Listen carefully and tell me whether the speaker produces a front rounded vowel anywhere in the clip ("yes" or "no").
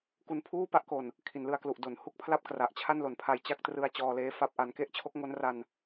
no